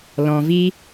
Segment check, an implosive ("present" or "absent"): absent